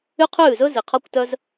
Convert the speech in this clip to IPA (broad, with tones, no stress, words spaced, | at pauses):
y˦qʰʉː˦˨zɵ˦ zi˨qʰɔ˦kʷtœ˦z